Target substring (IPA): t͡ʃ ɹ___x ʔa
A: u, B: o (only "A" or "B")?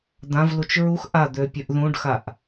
A